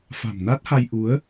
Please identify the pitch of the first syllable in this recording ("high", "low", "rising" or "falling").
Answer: low